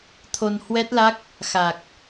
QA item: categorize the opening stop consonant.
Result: aspirated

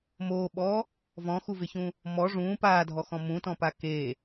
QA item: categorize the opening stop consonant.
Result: implosive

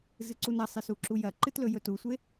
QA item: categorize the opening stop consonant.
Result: click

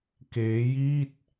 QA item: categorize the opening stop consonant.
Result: plain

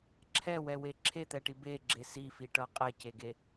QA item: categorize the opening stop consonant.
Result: click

